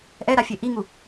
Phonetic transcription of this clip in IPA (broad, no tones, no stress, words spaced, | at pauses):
ʔɛɾafʲe ʔiŋu